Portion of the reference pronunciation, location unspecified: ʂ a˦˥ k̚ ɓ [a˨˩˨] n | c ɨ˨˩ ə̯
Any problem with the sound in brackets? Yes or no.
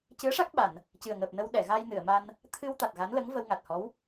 no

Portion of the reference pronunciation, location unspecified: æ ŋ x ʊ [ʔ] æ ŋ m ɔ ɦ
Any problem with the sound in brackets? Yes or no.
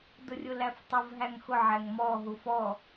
yes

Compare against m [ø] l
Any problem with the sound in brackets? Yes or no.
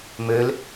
no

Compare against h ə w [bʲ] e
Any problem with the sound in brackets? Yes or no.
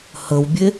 no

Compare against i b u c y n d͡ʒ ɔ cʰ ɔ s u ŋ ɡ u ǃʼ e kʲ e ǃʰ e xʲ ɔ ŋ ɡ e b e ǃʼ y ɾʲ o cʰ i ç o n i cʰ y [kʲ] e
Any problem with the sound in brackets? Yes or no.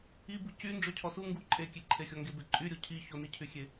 yes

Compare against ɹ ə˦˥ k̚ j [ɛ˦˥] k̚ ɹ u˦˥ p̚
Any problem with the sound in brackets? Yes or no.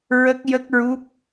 yes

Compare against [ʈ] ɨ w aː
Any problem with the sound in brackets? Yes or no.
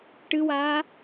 no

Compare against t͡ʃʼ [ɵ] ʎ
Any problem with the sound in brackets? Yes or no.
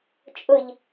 yes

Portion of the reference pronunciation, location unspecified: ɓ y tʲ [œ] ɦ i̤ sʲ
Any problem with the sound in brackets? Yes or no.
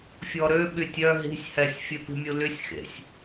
no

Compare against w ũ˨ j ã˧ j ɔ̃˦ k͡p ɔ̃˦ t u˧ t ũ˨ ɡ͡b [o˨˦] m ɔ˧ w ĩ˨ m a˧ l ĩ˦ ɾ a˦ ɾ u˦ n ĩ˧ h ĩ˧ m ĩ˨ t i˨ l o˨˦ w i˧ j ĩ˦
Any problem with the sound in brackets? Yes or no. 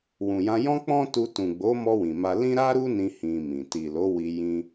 no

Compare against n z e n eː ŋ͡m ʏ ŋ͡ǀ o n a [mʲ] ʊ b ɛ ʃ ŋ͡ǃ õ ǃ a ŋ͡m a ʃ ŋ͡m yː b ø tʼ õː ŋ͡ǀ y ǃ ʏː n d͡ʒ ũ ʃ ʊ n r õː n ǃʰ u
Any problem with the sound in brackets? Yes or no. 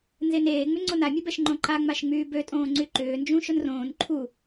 no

